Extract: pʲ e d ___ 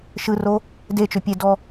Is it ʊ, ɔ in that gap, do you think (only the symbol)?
ɔ